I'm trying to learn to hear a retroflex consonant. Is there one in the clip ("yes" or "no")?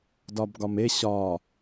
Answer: no